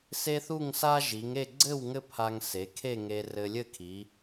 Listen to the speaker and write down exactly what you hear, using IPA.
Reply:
se˥θu˥˧ŋsa˥ ʒi˩˧ŋe˥˧ ɡ͡ǀɘ˥˧w ŋɘ˥pʰa˧ŋ se˩˧kʰe˥˧ŋe˧ rɘ˧lʲɘ˥˧kʰi˩˧

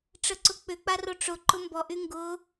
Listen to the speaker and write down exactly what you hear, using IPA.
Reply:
ʈ͡ʂəǀʊk͡pʏk͡pa roʈ͡ʂʊǃʊ mbɔʔy ŋɡʊ

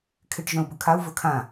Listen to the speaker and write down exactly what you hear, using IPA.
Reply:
kʰɪʈ ʒœ̃u̯bɵkʰau̯ vɵkʰã

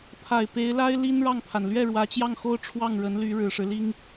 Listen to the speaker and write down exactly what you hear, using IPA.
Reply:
pʰa˨˩ɪ̯pe˧˥ɪ̯la˥ɪ̯ li˥n ɻɑ˥˩ŋpʰa˩n lɥɛ˥˩ɻwä˧˥t͡ɕjɑ˥˩ŋxo˥ʊ̯ ʈ͡ʂʰwɑ˥˩ŋɻə˧˥n ly˧˥ɻɻ̩˨˩ʂɻ̩˦li˥ŋ

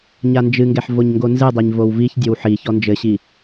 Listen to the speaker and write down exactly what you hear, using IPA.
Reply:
ɲand͡ʒɨŋɡɛħ voɲŋɡonzɨdˤeɲ vowviç dʲowħi çɔnd͡ʒɘɕi

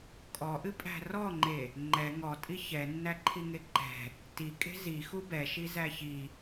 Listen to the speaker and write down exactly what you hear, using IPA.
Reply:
kʼɔʔɨpʼæ̤ rɔŋ͡ǃe | ŋ͡ǃɛ ŋɔtʼi çɛnːæǃʰiŋe ǃɛ̤ | tikʼe̤ zixu bɛʃizæ çi

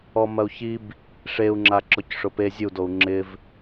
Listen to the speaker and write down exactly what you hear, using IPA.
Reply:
ɔmɐu̯çib | ʂeu̯ ŋ͡ǁaǁɔcʂʊpe zʲud ou̯ŋ͡ǁɪv

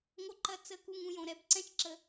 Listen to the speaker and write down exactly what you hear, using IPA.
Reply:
ŋo˥ǃɐ˥ t͡sə˥˧ ku˥˧ŋũ˥˧jõ˩˧ɾɛ˥b ǀɛ̃˥t͡ʃǁə˧

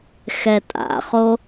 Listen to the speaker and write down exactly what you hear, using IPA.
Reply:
xɛtʼa̰χo

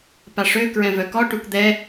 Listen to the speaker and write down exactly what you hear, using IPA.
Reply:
paʂø kɹɛ̃vœkɔ ʈukd̪ɛ

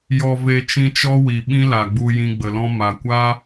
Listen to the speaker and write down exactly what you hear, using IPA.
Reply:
jɔ˨ve˨ t͡ʃĩ˧t͡ʃɔ˦wi˨ ɓĩ˦la˨ɡ͡bu˧ jĩ˧ɡ͡bə˨lɔ̃˦ ma˨kʷa˦

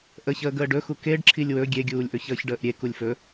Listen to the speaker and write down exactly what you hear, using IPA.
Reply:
ʔəçəːɡ əːɖɵxu keɖ ǁʰilʲwɵ ɡʲeɡʲuːlʲʔɵ çəːçɖəːʔɾʲe kulʲfɵ

